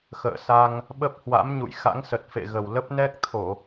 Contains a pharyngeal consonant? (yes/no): no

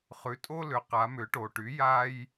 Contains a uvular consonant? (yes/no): yes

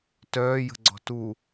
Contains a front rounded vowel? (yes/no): yes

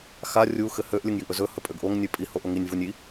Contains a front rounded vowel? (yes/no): yes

